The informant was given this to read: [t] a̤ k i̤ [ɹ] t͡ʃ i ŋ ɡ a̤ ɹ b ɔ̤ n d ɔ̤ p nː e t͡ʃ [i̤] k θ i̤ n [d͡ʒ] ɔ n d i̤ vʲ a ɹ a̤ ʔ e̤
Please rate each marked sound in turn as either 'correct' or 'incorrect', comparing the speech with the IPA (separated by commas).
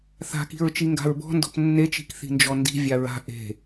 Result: incorrect, correct, correct, correct